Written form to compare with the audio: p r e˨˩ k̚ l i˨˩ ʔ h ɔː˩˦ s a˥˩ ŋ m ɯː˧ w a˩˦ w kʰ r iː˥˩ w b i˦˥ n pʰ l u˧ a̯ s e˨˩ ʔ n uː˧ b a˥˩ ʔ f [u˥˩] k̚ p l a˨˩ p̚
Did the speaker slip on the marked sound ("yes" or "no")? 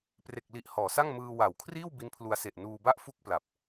no